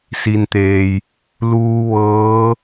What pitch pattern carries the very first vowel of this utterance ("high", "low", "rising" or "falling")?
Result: low